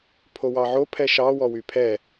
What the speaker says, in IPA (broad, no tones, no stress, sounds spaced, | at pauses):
pʰ o w ɑ ʕ o pʰ ɛ ʃ ɑ w ɔ w y pʰ ɛ